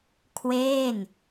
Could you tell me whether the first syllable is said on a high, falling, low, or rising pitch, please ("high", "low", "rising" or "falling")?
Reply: falling